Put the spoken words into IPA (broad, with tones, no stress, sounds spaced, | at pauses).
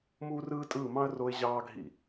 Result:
m uː˥ r ɯː˥ tʼ ɯː˥˧ m ɑ̃˥ ə̯ r o˥ ɪ̯ ʑ ɑː˥ ɡʱ ḭ˥˧